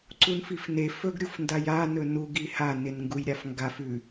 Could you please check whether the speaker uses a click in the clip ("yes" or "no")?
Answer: yes